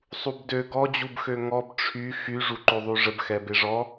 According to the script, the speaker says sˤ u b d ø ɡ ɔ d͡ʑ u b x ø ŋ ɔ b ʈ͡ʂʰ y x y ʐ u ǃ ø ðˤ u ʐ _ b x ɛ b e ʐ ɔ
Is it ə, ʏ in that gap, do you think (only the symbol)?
ə